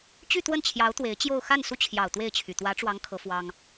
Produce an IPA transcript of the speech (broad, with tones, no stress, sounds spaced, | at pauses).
t͡ɕ y˥˧ t̪ w ə˥˩ n t͡ɕʰ j ɑ˧˥ ʊ̯ t̪ w e˧˥ ɪ̯ t͡ɕ j o˥˧ ʊ̯ x a˥˩ n s u˥ t͡ɕʰ j ɑ˨˩ ʊ̯ t̪ w e˥˩ ɪ̯ t͡ɕʰ y˨˩ t̪ w ä˧˥ ʈ͡ʂ w ɑ˧˥ ŋ kʰ ɤ˧˥ f w ɑ˥ ŋ